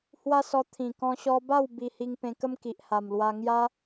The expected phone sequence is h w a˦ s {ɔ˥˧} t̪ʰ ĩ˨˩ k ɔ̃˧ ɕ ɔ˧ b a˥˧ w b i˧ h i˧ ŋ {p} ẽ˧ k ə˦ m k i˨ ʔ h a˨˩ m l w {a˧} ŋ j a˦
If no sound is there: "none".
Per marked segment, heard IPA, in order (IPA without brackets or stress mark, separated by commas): ɔ˧, p, a˧